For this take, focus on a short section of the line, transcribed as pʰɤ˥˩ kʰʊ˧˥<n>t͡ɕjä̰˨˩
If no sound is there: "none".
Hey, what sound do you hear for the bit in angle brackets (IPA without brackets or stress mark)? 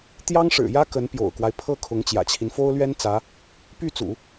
ŋ